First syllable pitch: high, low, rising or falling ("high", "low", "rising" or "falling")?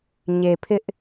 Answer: low